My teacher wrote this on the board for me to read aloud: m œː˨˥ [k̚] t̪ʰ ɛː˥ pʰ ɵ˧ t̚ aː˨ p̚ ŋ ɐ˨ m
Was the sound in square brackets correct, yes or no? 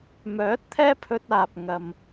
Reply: no